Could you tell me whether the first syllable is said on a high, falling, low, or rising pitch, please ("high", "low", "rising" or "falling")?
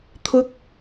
high